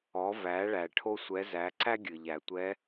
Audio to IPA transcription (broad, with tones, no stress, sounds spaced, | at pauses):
ɔ˩˧ v æ˩˧ ɭ æ˩ ʈʰ o˧ sʷ ɛ˩˧ z æ˩˧ ǀ æ˥ ɡʲ ɨ˩ ʎ æ˩ tʷ ɛ˧˥